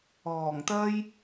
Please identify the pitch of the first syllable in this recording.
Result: low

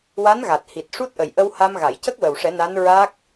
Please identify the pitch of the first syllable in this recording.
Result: rising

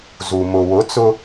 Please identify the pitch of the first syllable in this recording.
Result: low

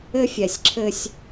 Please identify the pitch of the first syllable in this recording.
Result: high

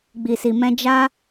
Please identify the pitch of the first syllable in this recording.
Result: low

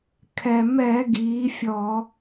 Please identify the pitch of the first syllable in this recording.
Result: low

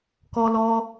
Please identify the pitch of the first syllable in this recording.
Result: high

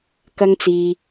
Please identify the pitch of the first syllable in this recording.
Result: high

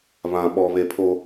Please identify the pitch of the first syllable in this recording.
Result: high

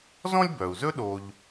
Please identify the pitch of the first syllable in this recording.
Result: high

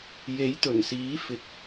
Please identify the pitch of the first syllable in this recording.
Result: rising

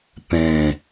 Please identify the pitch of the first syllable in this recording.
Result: low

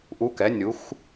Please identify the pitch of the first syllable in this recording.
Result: rising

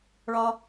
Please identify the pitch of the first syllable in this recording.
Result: low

